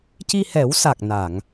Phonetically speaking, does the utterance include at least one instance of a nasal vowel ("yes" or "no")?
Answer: no